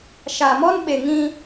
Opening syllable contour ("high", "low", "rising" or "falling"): low